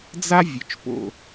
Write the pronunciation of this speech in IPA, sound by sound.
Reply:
d͡z a˦ vʲ ɵ˨ t͡ʃ p o̰˦˨

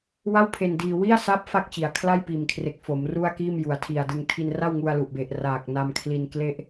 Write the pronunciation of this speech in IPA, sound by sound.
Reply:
w a˥˩ w pʰ e˧ n d iː˧ w i˥˩ a̯ s a˦˥ p̚ f a˥˩ k̚ t͡ɕ i˩˦ a̯ kʰ l a˥˩ j p iː˨˩ m kʰ r e˨˩ k̚ f o˩˦ m r u˥˩ a̯ k iː˥˩ m j u˩˦ a̯ tʰ i˨˩ a̯ d ɯ˧ ŋ tʰ i˧ n r a˥˩ w ŋ u˧ a̯ l u˨˩ ʔ b e˨˩ ʔ r aː˨˩ k̚ n a˧ m kʰ l i˧ n k l e˥˩ ʔ

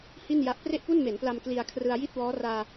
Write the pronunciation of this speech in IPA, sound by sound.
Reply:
h i˥˩ n j a˦˥ ʔ p r e˥˩ ʔ p u˥˩ n m e˩˦ n p l a˧ m k l i˧ a̯ kʰ r ɯ˧ a̯ j i˥˩ t̚ w ɔː˦˥ r aː˧

